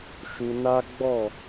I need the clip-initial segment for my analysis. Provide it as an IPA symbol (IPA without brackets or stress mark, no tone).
ʃ